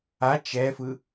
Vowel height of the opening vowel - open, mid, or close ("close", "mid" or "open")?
open